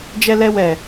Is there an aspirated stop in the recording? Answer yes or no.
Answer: no